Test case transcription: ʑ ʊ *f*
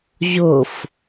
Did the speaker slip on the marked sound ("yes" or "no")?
no